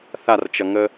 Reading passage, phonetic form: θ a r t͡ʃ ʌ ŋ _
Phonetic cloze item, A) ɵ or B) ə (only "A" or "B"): B